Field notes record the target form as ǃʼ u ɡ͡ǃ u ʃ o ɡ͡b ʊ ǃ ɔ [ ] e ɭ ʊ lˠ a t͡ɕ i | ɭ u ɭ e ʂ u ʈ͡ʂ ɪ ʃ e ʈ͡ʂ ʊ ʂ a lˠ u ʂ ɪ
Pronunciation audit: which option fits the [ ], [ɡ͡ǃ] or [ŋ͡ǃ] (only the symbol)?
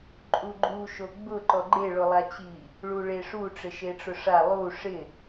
ɡ͡ǃ